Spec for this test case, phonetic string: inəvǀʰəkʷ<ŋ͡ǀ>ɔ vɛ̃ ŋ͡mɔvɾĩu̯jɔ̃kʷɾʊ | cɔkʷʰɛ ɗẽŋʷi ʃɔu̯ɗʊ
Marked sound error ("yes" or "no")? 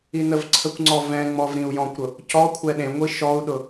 no